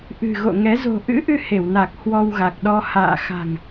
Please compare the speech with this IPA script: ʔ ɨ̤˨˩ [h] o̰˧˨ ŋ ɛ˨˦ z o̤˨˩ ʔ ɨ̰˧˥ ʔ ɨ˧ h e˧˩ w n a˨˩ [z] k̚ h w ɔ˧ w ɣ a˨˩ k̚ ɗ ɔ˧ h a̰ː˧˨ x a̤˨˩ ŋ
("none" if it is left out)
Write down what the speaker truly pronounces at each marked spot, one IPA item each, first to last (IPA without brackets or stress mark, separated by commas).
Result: ɣ, none